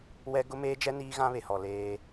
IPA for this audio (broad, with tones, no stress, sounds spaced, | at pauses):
w ɛ˦ ɡ ʊ˦ m eː˦ d͡ʒ ɛ˦ n iː˦ ɣ ã˦ β e˨ h ɔ˨ l eː˦